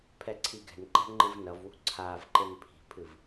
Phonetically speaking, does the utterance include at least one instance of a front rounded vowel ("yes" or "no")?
no